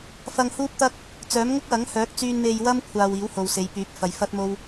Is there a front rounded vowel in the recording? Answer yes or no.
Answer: yes